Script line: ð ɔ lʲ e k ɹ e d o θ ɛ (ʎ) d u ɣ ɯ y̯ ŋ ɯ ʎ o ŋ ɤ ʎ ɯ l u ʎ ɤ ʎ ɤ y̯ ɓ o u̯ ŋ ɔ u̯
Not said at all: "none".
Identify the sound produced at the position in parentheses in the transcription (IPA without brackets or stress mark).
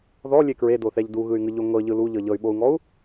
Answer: ʎ